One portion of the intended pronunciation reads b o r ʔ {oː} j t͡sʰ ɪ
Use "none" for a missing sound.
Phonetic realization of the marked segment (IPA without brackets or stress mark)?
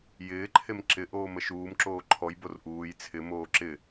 uː